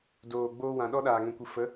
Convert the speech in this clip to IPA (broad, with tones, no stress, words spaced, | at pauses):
doː˨ɡ͡boː˧wã˨ ɗɔ˧ɗaː˨ŋɛ̃˨kʷɨ˨ fə˨˦